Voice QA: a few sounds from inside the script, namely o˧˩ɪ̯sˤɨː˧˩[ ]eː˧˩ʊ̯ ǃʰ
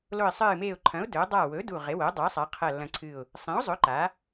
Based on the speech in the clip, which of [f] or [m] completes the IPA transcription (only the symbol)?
m